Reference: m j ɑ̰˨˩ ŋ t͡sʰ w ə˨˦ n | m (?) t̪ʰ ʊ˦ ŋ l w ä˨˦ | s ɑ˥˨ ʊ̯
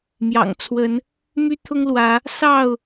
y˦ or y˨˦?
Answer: y˦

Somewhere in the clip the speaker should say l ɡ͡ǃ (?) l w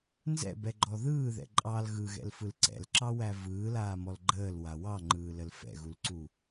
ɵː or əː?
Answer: əː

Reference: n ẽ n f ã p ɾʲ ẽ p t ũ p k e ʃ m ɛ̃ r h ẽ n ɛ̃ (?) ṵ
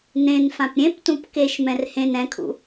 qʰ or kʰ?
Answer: kʰ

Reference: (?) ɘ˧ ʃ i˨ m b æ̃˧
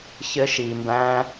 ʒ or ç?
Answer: ç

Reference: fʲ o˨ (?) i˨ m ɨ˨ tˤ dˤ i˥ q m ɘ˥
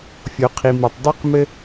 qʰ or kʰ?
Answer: qʰ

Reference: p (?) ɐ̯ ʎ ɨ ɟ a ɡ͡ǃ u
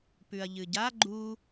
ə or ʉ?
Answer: ʉ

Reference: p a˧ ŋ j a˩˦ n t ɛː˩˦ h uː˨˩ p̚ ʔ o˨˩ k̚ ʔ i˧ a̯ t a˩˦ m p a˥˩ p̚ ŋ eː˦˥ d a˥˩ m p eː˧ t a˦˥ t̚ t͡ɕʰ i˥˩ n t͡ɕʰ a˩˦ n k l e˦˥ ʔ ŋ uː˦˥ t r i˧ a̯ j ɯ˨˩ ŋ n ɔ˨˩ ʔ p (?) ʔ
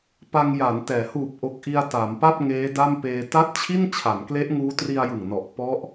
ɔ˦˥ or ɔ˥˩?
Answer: ɔ˦˥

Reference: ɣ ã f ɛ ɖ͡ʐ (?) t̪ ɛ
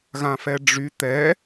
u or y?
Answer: y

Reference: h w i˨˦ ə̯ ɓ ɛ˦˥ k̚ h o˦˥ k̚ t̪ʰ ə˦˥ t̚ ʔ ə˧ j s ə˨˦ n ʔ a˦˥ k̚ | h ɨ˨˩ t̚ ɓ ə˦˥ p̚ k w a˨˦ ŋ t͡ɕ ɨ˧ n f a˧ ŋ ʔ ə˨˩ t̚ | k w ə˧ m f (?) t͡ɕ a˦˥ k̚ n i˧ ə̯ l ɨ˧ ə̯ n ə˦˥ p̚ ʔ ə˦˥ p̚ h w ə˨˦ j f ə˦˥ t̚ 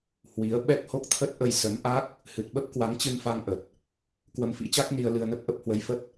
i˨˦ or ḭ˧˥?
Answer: ḭ˧˥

